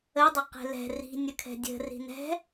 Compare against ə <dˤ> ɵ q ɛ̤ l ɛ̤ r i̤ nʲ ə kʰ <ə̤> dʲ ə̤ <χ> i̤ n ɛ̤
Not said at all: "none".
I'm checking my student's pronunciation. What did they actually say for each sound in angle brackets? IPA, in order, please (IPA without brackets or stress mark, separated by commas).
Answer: dˤ, ɛ̤, r